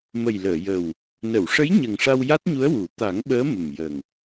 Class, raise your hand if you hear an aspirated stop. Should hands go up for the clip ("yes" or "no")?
no